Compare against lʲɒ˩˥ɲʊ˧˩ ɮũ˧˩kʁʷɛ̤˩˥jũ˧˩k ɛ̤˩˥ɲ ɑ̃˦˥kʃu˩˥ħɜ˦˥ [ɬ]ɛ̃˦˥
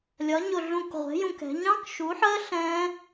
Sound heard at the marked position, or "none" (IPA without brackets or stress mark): ɬ